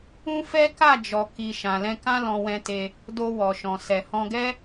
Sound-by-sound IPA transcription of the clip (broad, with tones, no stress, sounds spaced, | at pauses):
ũ˦ f ɛ˦ k a˦˨ d͡ʒ ɔ˨ k i˨ ʃ ã˨ l ɛ̃˧ k ã˦ l ɔ̃˧ w ɛ̃˧ t e˧ | d o˧ w ɔ˨ ʃ ɔ̃˨ s ɛ˨ h ɔ̃˧ ɡ ɛ˦